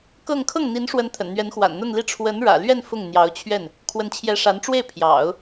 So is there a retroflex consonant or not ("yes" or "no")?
yes